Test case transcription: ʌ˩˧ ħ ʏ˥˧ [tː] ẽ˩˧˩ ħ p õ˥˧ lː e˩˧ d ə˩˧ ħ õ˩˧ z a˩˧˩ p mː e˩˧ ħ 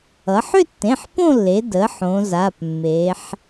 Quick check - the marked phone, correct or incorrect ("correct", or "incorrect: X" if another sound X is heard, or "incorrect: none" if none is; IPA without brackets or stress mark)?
correct